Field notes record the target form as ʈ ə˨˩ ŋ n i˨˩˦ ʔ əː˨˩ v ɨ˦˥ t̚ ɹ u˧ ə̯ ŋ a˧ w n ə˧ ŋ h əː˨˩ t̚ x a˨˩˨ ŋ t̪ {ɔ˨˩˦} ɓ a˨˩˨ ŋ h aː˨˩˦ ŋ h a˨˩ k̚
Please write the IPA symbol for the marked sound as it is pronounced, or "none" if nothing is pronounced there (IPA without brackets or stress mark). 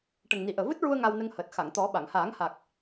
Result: ɔ˨˩˦